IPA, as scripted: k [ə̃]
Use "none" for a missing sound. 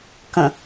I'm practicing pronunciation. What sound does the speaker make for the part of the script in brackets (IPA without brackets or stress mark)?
ə̃